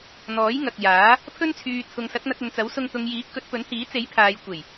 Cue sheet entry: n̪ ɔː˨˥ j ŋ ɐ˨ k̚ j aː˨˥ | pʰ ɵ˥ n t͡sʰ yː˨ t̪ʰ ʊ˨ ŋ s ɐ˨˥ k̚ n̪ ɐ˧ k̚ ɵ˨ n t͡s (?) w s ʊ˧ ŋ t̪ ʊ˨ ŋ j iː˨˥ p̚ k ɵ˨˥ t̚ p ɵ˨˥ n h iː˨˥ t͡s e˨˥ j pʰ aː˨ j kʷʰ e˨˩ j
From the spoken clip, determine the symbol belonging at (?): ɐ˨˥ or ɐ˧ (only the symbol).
ɐ˨˥